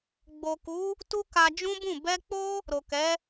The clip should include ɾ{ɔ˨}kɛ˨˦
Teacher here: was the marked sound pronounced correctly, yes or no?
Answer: no